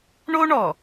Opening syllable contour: high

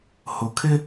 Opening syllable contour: low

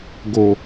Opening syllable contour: low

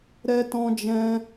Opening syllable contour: high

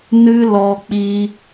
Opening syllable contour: high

